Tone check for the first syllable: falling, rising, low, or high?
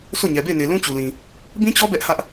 falling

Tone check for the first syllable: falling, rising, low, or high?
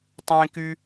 high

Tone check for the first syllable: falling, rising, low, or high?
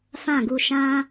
falling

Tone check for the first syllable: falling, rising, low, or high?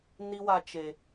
high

